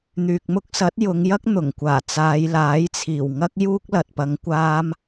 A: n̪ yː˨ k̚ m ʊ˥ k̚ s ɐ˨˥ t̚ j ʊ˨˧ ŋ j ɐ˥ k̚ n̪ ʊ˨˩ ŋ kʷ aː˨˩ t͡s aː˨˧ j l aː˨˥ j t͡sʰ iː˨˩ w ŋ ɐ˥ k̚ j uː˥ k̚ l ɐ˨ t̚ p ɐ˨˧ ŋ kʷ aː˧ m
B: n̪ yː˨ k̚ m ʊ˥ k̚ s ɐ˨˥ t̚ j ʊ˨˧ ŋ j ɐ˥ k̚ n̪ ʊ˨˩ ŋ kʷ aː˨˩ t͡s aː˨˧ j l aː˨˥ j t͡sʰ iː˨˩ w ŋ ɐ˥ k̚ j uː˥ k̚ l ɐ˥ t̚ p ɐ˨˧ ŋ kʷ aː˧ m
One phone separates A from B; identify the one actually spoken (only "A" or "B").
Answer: A